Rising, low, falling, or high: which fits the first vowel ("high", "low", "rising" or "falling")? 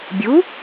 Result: rising